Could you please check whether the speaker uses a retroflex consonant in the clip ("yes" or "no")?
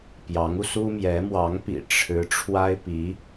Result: yes